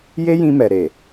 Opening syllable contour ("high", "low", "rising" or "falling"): high